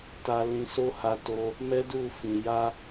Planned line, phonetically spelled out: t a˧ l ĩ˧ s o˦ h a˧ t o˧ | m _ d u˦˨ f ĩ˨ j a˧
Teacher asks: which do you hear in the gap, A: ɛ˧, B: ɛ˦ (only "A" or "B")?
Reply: B